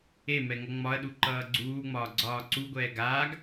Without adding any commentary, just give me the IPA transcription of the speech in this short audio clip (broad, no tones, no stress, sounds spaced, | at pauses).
e m ɛ ŋ ʌ ŋ͡m ɒ ɐ̯ ɗ u ǃ ʌː ɡ͡ǀ uː ŋ͡m ɒː ɡ͡ǀ ɒː ǀ u ɡʷ ɛː ɡ aː ɡ